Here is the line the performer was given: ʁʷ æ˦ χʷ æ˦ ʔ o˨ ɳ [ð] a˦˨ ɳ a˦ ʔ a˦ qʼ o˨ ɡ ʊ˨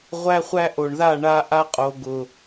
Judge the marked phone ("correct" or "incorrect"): correct